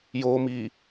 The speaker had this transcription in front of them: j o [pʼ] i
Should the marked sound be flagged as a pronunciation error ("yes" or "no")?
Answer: yes